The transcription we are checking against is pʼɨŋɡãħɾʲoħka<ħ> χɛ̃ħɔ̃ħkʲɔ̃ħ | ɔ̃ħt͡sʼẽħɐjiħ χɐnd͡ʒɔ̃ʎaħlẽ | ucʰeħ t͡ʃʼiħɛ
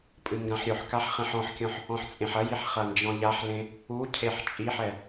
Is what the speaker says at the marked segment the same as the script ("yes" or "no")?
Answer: yes